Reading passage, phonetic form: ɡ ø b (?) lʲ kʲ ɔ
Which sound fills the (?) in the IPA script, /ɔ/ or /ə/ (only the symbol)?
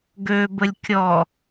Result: ə